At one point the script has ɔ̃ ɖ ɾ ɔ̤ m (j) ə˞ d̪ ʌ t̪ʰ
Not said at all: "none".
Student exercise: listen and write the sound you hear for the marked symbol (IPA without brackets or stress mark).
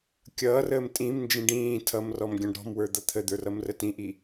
w